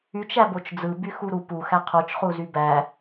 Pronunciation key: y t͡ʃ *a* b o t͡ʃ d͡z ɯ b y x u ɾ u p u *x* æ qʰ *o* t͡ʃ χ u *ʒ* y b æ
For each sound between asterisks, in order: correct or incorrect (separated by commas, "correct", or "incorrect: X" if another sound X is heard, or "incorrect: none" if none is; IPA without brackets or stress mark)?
incorrect: æ, correct, correct, incorrect: z